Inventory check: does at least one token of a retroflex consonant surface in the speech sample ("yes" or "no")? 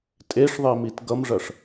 yes